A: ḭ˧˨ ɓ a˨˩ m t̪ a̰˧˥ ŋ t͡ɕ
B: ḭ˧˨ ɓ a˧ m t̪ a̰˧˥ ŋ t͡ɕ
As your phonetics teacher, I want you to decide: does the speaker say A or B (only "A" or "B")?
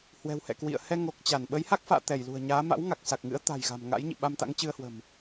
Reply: B